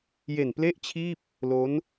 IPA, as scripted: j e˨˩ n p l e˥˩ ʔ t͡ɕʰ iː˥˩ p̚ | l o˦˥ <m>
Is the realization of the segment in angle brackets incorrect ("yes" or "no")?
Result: yes